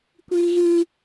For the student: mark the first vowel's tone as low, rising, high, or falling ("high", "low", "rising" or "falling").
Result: high